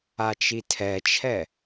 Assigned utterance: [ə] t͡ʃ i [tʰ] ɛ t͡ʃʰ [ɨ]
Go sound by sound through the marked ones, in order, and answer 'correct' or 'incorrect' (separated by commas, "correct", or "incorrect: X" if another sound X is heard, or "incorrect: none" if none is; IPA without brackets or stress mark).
incorrect: a, correct, incorrect: ɛ